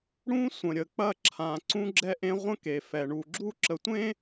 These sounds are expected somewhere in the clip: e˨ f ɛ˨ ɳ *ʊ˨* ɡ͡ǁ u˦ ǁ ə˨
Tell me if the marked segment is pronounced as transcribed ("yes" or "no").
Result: no